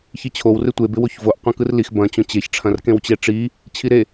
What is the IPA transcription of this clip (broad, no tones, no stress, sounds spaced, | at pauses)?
ç i t͡ɕʰ o w r ɪ tʷ e b ɪ w o ç v o ʔ qʷ ɐ̃ k ɯ r l i x b ɐ̃ t͡ɕ õ t͡ɕ e ç ʈ͡ʂʰ ɐ̃ r k ẽ w t͡ɕ e ʈ͡ʂ i | t͡ɕʰ i ɾ e